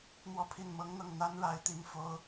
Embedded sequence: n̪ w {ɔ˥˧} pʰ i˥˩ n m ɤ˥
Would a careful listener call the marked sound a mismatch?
no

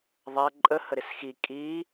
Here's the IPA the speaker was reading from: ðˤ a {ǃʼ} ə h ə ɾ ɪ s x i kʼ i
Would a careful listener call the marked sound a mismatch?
no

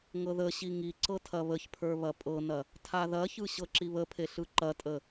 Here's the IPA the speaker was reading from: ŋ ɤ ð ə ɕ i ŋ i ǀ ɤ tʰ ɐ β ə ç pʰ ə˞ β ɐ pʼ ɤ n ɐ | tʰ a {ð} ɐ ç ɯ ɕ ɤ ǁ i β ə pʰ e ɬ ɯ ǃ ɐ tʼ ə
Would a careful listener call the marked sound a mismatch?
no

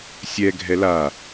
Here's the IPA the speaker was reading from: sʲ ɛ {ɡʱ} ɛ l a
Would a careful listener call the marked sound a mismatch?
no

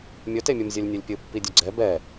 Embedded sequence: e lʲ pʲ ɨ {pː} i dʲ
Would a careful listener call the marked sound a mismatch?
no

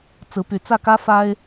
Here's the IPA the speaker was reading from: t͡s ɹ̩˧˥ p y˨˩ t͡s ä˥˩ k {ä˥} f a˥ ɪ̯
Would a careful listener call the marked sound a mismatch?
no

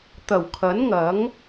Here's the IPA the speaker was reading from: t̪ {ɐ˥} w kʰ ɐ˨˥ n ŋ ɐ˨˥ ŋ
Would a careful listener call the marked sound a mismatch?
yes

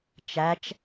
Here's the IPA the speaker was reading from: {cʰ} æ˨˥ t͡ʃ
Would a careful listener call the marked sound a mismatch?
yes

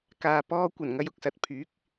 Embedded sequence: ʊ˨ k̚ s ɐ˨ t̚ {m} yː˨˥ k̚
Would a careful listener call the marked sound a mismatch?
yes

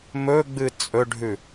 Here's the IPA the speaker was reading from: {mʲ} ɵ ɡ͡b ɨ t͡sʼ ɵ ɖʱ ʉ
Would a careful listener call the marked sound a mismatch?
yes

